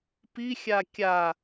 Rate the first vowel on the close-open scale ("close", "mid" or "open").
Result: close